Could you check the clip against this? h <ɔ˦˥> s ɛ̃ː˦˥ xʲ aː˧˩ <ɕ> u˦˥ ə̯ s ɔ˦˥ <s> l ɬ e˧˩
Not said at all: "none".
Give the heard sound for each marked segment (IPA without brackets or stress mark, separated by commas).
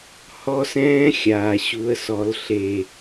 ɔ˦˥, ɕ, none